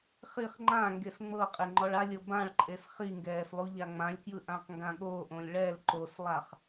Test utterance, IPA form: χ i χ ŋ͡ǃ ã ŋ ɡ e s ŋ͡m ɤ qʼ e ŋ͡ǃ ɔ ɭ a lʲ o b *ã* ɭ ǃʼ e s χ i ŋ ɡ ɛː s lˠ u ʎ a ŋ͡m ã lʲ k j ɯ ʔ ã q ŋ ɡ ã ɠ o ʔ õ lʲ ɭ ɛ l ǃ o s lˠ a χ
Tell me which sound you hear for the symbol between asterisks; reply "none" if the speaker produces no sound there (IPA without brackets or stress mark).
ã